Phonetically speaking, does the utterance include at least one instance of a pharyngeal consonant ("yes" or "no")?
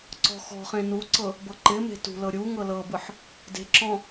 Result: yes